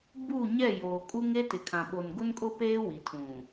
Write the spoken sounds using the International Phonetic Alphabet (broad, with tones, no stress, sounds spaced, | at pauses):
b u˦˨ ɲ ɛ˦˨ j oː˨ kʼ uː˦ ŋ eː˦ t ɪ˨ kʰ ã˨ ɓ o˨ n ɡ ʊ˦ n kʼ ʊ˦ p eː˦ w i˨ tʰ ũ˨